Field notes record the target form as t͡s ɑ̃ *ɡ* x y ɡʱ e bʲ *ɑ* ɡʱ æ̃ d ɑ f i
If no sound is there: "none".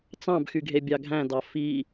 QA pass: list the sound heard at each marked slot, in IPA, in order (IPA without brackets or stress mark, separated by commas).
b, ɑ